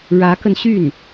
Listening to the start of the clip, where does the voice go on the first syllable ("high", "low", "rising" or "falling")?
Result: rising